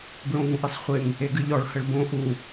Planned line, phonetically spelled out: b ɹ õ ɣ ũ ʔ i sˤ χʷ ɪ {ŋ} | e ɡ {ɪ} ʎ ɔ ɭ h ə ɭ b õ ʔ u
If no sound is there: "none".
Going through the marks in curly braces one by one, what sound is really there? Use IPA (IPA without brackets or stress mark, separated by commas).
ŋ, ɨ